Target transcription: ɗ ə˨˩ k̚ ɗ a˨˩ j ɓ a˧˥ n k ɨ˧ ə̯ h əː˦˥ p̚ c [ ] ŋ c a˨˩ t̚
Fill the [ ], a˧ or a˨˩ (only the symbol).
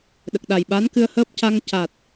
a˧